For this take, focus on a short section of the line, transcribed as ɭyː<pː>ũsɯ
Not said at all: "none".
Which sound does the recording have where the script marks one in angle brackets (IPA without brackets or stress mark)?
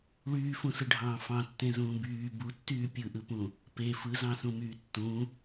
f